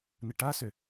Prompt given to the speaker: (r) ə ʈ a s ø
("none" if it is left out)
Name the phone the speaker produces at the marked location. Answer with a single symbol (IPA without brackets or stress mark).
n